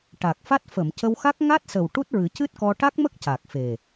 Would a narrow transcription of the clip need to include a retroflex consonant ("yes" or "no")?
yes